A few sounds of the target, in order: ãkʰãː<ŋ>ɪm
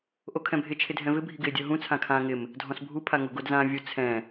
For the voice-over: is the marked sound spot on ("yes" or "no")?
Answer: yes